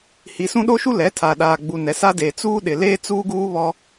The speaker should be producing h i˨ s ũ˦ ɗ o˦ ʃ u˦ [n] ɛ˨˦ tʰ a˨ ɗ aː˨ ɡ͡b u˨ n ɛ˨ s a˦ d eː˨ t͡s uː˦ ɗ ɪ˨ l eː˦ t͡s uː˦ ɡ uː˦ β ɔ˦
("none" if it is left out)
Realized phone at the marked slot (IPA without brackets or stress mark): l